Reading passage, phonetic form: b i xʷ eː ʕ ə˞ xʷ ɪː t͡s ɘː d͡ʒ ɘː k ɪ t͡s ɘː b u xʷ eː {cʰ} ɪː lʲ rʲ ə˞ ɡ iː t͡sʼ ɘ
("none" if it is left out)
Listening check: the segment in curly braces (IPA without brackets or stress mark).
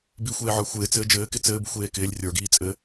k